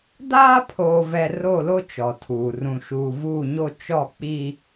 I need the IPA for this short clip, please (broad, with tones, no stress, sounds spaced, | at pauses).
d aː˦ pʰ oː˨ v ɛ˨ r o˦˨ l o˦ t͡ʃ ɔ˨ tʰ uː˨ r ũ˨ ʃ uː˨ v uː˦˨ ɲ o˦ t͡ʃ ɔ˦˨ k͡p i˦